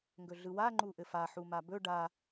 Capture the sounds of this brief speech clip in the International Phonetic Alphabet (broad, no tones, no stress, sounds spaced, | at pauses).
ŋ ɡ ɵ ɮ ɯ w a ŋ͡ǃ u ʔ ɘ f a ħ u m a b ɵ ɖ a